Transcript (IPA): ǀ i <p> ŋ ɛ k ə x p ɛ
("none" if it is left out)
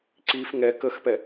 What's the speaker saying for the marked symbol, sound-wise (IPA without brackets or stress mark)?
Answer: f